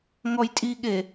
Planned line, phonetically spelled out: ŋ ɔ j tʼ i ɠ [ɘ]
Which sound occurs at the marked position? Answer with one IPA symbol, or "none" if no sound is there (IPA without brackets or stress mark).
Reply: e